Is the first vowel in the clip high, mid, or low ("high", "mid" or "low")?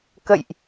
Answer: mid